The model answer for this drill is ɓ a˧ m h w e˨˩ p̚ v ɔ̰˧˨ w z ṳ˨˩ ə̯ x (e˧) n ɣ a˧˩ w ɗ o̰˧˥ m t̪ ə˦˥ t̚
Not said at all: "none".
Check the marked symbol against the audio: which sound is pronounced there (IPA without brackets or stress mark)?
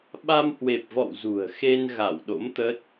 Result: e˧